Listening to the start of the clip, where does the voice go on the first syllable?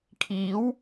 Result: rising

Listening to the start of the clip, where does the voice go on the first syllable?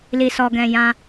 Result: low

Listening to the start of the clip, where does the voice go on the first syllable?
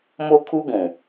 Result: high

